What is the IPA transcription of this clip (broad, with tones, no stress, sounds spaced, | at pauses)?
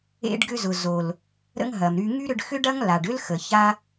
ḛ˧ ɖ ɡ ʏ˧ z ʊ˨ z o˨ l | ɾ ə̰˦ ŋ ɦ ɐ˨ m ɾ y˧ ŋ y˦ ɾ ʏ˧ ɖ x ʏ˦ ɖ ɐ˦ ŋ l a˨ ɖ ʏ˦ l x ə˨ ç a˦